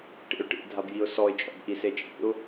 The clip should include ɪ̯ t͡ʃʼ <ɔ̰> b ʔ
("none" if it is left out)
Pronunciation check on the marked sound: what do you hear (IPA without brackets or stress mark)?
ɔ̰